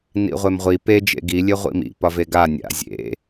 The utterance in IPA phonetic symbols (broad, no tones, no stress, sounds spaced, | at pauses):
n ḭ ʁʷ e m ʁʷ i p e d͡ʒ ḛ ɡ i lʲ e ʁʷ ḭ m ḭ p ɒ v e ɡ a nʲ a̰ zʲ ḛ